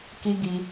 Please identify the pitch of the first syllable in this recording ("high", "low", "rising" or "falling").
high